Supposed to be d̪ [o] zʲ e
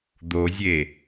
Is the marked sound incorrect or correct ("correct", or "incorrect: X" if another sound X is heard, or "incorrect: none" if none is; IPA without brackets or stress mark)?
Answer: correct